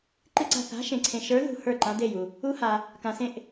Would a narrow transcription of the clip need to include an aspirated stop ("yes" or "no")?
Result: yes